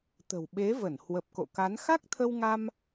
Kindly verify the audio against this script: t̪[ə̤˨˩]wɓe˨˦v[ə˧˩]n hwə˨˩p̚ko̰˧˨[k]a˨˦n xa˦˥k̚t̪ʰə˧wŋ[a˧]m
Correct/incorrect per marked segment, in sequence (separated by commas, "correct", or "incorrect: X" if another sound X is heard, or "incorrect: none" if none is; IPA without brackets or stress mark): correct, correct, correct, correct